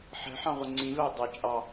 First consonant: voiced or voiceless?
voiceless